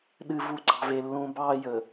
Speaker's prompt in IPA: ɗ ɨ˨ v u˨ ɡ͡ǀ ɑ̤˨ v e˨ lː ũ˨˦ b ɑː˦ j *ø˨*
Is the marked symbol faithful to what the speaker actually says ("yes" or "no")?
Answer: no